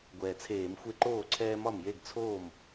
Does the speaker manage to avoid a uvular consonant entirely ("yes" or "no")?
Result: yes